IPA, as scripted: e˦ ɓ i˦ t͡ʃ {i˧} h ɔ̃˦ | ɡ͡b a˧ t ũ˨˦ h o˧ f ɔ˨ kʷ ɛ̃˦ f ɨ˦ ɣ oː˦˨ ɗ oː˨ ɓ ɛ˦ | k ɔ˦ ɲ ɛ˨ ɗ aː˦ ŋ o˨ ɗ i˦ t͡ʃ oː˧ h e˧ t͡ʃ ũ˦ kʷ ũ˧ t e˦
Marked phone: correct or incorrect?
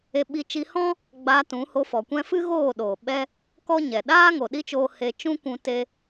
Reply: correct